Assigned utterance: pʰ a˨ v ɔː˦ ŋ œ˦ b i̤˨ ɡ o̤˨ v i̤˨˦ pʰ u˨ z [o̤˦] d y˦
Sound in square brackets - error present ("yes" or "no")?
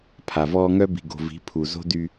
no